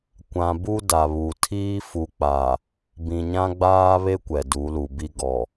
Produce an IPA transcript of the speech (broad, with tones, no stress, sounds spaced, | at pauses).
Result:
kʷ ã˨ b u˦ d a˨ β u˨ tʰ iː˦ f u˨ k͡p a˨ | b ĩ˨ ɲ ã˦ ɡ͡b aː˦ β e˦ kʷ ɛ˨ d u˨˦ l u˨ b i˦ ɡ ɔ˨